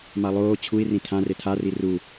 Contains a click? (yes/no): no